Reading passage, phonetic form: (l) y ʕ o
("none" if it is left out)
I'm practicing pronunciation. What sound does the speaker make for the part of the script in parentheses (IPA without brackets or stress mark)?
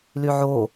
l